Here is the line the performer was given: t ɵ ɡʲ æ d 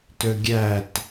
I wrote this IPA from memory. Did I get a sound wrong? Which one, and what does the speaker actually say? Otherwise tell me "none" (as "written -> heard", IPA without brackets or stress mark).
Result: d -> t